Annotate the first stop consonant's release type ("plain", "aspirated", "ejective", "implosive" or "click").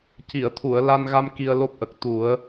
plain